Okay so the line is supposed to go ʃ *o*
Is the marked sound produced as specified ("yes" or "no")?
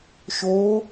yes